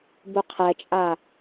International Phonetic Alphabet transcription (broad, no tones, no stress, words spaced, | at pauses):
buqʰɛt͡ʃʼa